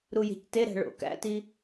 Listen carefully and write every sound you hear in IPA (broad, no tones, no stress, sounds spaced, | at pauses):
ɾ u j e̤ c t e ɾ æ̤ ɭ o̰ k æ̰ t i